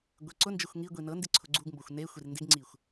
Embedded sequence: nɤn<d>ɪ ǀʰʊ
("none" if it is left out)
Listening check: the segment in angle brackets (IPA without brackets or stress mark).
d